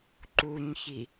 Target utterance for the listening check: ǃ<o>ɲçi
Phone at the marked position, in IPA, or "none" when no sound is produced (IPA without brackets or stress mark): u